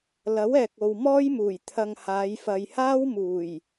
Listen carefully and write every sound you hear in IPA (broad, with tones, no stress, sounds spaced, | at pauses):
l ɐ˨˥ w ɛː˨ k̚ o˨ w m ɔː˥ j m uː˨˩ j t̪ʰ ɐ˧ ŋ h aː˨˧ j f ɐ˨ j h aː˥ w m uː˨˩ j